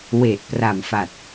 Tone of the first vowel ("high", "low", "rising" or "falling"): low